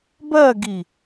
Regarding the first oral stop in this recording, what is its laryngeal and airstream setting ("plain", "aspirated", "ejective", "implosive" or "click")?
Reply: plain